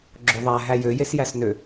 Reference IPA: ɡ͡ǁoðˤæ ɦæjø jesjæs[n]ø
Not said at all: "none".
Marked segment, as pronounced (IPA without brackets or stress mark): n